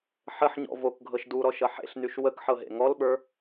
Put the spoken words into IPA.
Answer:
ħəħɲɔ̰ vokɡʱɤʃ duɾɔʃʌ ħḛɬnyʃ wəkħɤɦḛ ŋɔlɓə˞

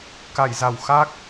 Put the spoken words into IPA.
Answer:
ka˧˩jza˧˩w xa˦˥k̚

